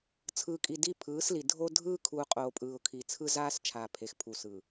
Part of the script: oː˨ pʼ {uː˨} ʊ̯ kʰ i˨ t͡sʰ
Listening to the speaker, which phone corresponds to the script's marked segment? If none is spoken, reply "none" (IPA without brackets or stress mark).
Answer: ɯː˨